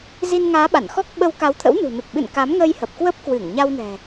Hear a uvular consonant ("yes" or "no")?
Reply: no